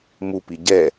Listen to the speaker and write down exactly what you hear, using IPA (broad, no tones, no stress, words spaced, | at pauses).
mupi ɟɛ